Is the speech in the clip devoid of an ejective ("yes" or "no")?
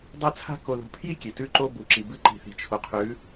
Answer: yes